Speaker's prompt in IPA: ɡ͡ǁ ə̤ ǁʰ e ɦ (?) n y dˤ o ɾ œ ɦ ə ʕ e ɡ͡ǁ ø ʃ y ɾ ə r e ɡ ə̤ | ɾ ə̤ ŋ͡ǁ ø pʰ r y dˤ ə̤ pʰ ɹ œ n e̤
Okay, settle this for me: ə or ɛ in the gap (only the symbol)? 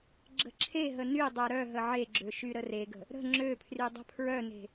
ə